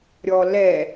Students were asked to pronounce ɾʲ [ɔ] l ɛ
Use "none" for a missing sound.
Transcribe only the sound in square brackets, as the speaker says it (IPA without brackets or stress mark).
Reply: ɔ